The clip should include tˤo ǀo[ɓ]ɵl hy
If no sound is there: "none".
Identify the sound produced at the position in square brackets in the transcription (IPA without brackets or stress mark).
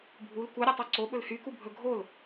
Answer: ɓ